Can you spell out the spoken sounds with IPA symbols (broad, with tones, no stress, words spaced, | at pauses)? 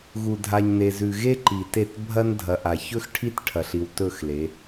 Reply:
ɣu˨dʱa˨ɲne˨zʉ˨ ɣe˦ǃi˨ te˦˨t bʱɐ˦ndʱɐ˨ʔa˨ çɵ˦xʈʰi˦t ʈʰɐ˨ɬi˨wtɵ˦˨xle˨˦